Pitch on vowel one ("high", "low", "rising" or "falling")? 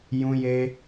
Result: high